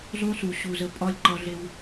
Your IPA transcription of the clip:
zˤ u˦ s u˨ ɕ u˨ z ə˧ pʼ ɒ˦ lʲ ǃ ʌ˧ ɮ e˧ w

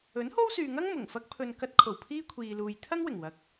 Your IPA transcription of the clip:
ɵ˨˥ n h o˥ w s yː˨ ŋ ɐ˥ ŋ m ʊ˨˩ ŋ f ɐ˥ k̚ pʰ ɵ˧ n k ɐ˧ t̚ kʰ o˨˩ w pʰ iː˥ kʷʰ iː˨ l uː˨ j t̪ʰ ɐ˥ ŋ w ɪ˨˩ ŋ w ɐ˨˥ k̚

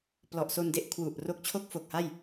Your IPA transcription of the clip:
p l ɔ˨˩ ʔ s o˧ n d e˦˥ ʔ kʰ w u˨˩ ʔ r o˦˥ k̚ t͡ɕʰ o˥˩ k̚ f o˨˩ k̚ h a˥˩ j

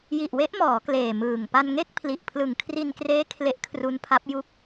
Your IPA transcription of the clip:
j i˨˩ ʔ w e˦˥ ʔ m ɔː˩˦ k l eː˨˩ m ɯː˨˩ ŋ p a˧ n ŋ e˥˩ k̚ pʰ l i˨˩ ʔ pʰ l ɯ˨˩ ŋ kʰ r i˧ n k r eː˦˥ kʰ l e˦˥ ʔ kʰ r u˦˥ n pʰ a˦˥ p̚ j u˥˩ k̚

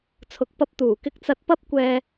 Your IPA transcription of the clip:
t͡sʰ ʊ˨ k̚ p ɐ˧ p̚ t̪ uː˨˩ k ɪ˧ k̚ t͡s ɐ˧ t̚ p ɐ˥ p̚ kʷ ɛː˧

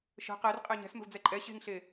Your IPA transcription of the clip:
ʃ ə̤ q e r qʼ e ɲ ɛ̤ s m ə̤ v d͡z ɛ ǃʼ ɛ ɕ e̤ ŋ ɬ e

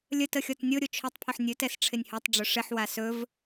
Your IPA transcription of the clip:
lʲ ə t ə xʲ ɔ t nʲ o ɾʲ o t͡ʃʰ ɵ tˤ pʰ ɵ ħ nʲ ɵ t ɛ s ʈ͡ʂʰ ɪ nʲ h o tˤ ɖ͡ʐ ɵ ʂ ɪ ħ w a s ɵ v

